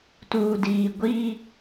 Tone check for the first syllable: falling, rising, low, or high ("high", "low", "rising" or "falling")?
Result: low